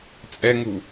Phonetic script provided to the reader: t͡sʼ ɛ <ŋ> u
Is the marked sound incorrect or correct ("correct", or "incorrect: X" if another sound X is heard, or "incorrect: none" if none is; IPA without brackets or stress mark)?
correct